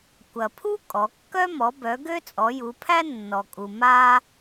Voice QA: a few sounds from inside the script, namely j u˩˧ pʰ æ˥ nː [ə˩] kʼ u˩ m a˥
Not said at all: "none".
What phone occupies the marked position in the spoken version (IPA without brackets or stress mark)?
ɔ˩